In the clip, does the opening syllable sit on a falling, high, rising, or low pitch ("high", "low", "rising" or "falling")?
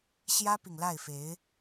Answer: high